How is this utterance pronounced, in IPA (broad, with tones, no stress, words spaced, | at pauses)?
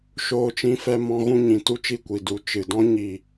ʃoː˧t͡ʃĩ˧fɛ˧mɔ̃˧ ɣũ˧ɲĩ˨ tu˦t͡ʃi˦˨kʷi˨du˨˦ t͡ʃɨ˨dɔ̃˦ ɲi˦˨